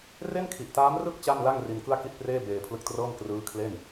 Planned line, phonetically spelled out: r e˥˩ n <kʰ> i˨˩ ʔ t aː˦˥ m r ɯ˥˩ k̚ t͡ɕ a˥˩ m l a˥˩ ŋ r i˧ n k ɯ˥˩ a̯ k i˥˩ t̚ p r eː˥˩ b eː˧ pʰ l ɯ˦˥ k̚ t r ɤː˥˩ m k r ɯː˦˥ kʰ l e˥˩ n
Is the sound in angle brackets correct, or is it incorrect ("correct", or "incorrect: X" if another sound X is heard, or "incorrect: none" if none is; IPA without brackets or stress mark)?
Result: correct